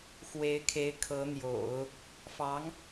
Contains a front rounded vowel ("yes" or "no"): no